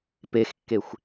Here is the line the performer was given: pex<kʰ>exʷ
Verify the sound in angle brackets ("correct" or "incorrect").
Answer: incorrect